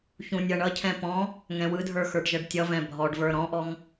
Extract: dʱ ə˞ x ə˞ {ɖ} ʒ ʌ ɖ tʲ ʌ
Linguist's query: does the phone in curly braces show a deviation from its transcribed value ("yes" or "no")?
no